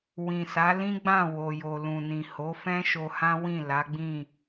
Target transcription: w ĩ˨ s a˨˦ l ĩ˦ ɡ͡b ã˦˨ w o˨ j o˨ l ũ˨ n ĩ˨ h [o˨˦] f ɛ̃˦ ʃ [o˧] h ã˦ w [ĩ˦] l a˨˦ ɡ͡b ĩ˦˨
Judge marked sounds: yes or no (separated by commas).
yes, yes, no